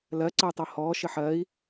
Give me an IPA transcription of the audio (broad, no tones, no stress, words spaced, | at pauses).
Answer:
lɜ ǀəy̯tˤohɔː ʃɘħɜi̯